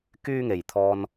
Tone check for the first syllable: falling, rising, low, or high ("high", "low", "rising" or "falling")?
high